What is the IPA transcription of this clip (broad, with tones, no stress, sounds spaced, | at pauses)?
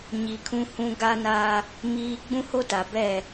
ɲ i˨ kʰ ũ˦ h ũ˦ ɡ a˦ n a˦ | m iː˦ ɡ͡b ũ˦ h o˦ t a˨ b ɛ˦˨